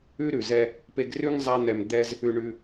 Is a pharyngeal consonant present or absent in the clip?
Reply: absent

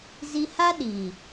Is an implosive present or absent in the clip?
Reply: present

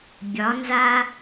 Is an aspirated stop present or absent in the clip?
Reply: absent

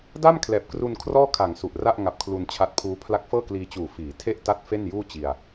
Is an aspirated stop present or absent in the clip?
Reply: present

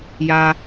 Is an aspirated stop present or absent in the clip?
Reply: absent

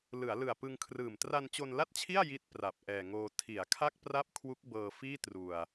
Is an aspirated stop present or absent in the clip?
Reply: present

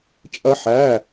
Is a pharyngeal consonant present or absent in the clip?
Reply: present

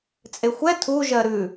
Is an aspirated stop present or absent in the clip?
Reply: present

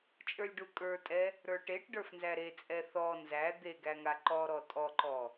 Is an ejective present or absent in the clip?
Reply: present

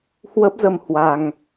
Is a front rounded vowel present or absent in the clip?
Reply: absent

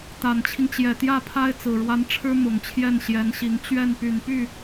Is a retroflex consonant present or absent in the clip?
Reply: present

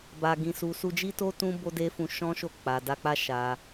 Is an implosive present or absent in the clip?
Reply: absent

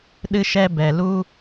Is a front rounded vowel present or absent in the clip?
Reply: absent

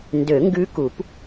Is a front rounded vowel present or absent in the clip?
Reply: present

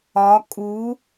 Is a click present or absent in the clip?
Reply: absent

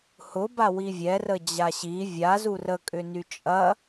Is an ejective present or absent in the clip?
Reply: present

